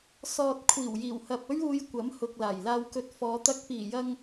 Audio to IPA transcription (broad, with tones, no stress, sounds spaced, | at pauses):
s ɔː˨ t̚ kʷʰ iː˨˩ w j iː˨˩ w h ɐ˨ p̚ ɵ˥ ɥ uː˧ j kʷ ɐ˨˥ m h ʊ˨ k̚ l aː˨˩ j l aː˧ w k ɵ˧ t̚ f ɔː˨˧ t̪ ɐ˧ k̚ p iː˨˩ j ɐ˧ ŋ